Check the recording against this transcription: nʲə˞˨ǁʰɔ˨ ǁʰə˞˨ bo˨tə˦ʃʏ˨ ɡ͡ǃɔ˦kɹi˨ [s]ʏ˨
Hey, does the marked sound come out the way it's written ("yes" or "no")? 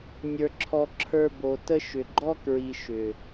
no